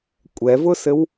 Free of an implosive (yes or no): yes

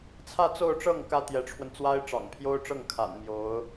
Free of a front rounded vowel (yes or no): yes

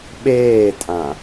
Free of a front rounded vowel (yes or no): yes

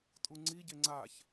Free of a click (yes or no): no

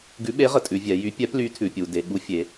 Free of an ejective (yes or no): no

